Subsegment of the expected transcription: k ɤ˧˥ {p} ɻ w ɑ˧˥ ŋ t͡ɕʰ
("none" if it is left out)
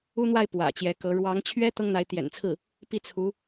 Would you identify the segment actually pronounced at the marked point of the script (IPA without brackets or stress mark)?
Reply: none